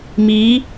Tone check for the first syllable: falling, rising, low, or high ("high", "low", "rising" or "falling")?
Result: rising